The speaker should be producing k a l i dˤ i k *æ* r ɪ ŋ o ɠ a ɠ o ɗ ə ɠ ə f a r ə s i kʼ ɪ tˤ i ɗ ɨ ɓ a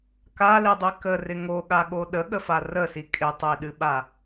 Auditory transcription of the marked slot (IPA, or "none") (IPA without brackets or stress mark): ə